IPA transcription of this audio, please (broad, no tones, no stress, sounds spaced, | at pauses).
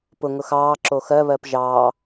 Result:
p ʊ ŋ ʊ x ɑː ǁ o x ɜ β ɜ p ʒ ɑː